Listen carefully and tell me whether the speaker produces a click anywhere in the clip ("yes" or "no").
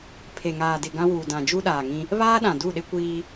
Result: no